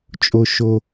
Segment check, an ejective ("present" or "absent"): present